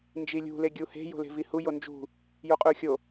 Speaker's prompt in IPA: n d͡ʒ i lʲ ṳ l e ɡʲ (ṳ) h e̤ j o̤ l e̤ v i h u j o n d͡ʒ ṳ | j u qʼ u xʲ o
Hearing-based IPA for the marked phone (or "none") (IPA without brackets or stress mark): u